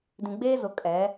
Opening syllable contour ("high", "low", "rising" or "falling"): low